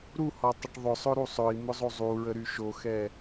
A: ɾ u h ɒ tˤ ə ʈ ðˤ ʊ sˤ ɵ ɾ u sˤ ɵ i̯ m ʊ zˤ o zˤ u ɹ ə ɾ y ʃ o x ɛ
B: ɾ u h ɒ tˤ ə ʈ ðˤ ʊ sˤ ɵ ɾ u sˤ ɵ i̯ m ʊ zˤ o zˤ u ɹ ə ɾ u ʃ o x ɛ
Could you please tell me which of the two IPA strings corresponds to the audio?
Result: A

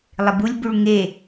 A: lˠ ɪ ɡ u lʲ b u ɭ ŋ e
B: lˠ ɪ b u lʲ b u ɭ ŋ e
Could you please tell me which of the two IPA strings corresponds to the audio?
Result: B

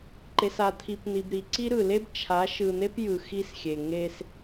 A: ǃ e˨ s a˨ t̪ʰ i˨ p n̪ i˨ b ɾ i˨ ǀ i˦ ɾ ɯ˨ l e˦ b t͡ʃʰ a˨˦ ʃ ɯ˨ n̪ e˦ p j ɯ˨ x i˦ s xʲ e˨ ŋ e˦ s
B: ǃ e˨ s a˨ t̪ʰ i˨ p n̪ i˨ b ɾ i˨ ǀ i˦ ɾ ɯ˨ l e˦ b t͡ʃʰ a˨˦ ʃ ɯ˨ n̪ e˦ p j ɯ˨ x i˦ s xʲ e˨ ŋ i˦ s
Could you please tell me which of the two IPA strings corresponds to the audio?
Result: A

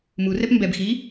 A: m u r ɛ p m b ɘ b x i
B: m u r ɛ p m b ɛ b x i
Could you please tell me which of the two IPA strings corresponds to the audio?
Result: B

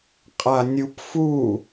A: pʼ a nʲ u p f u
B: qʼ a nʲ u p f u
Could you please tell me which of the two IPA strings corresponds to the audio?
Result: B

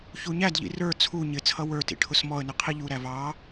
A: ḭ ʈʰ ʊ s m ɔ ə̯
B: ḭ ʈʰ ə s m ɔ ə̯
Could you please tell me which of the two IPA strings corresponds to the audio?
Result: A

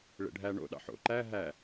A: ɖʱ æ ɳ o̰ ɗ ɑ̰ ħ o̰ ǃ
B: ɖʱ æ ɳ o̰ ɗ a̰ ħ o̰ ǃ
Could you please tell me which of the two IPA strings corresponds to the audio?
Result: A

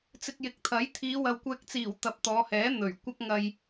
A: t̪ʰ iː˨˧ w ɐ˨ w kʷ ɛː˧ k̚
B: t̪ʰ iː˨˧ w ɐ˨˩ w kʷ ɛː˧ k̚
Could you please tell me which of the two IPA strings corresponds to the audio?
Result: A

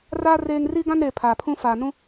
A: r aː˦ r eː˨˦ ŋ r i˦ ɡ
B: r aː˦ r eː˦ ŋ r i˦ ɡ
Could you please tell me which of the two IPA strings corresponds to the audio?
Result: B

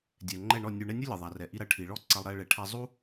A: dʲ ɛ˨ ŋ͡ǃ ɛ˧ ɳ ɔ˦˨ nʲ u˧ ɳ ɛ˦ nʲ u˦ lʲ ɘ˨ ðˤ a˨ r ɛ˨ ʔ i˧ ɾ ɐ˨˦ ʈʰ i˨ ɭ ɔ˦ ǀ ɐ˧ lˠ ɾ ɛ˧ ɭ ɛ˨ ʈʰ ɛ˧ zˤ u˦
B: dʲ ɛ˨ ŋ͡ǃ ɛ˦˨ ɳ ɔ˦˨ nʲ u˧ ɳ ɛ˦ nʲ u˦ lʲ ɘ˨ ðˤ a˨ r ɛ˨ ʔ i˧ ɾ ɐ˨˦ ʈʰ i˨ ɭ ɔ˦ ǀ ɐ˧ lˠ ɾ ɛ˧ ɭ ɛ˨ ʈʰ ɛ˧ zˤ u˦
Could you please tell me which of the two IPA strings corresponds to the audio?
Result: B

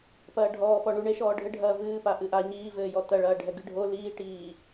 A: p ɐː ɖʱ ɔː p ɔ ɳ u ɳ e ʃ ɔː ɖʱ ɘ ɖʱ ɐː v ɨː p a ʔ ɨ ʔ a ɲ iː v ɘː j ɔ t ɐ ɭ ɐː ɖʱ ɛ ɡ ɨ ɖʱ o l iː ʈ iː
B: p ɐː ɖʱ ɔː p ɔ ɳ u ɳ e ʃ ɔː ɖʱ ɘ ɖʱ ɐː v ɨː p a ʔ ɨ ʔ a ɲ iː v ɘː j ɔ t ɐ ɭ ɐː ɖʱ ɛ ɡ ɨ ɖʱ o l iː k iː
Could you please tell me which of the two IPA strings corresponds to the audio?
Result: A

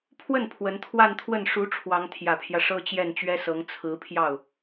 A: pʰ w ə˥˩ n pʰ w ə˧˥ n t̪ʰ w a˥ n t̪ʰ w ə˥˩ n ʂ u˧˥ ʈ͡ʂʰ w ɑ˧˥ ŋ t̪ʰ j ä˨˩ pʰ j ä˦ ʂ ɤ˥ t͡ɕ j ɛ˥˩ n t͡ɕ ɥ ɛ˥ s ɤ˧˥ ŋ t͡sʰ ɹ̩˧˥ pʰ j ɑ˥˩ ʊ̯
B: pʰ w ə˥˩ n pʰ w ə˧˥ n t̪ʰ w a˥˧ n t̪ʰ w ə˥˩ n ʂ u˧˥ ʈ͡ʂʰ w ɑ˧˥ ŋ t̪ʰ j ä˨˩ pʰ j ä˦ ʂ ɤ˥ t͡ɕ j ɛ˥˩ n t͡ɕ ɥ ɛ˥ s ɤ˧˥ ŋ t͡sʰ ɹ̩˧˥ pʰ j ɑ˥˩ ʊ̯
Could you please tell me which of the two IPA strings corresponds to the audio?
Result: B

